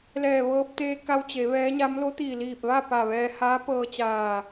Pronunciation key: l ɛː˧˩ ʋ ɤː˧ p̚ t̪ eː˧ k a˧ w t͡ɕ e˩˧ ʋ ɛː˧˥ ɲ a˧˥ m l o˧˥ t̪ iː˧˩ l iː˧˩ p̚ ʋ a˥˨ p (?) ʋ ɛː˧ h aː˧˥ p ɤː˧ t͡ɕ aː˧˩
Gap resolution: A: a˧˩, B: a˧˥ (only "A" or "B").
A